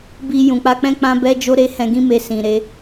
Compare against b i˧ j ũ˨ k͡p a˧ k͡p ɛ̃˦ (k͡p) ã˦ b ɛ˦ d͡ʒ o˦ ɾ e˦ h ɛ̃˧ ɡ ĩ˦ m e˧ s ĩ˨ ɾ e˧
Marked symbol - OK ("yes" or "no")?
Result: yes